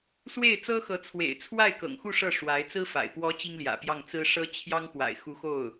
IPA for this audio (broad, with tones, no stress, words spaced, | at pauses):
swe˥˩ɪ̯t͡sɤ˥xɤ˧˥ t͡sʰwḛ˨˩ɪ̯t͡sʰwa˥˩ɪ̯kɤ̰˨˩ŋ xu˥˧ ʂɤ˥˩ʂwa˧˥ɪ̯t͡sɹ̩˥fa̰˨˩ɪ̯ pwɔ˧˥ t͡ɕi˥ŋljä̰˨˩pjɑ˥˩ŋ t͡sɹ̩˥ʂɤ˥ t͡ɕʰjɑ˥ŋxwa̰˨˩ɪ̯ xu˧˥xo˥˩ʊ̯